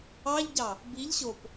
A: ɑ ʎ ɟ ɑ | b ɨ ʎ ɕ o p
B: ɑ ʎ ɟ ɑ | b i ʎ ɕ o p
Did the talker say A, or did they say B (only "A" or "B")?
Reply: B